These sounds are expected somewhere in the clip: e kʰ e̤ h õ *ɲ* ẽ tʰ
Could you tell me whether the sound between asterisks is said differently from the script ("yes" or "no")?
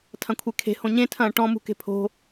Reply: no